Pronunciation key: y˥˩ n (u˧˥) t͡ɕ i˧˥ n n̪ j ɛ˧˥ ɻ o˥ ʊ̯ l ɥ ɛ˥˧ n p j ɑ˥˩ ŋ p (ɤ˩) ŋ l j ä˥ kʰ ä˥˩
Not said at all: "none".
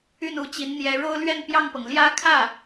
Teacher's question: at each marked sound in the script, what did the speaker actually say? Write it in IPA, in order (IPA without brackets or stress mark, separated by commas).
u˧˥, ɤ˩